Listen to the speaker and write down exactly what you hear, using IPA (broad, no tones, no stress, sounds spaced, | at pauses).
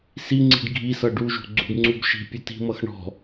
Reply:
s i ŋ͡ǀ i̤ ɖ ɡʱ i s ʌ ɖ u ʒ ṳ ɡ͡ǀ ṳ ɖ ŋ͡ǀ u b ʃ i̤ pʲ o t i̤ m ʌ x ɳ ɔ̤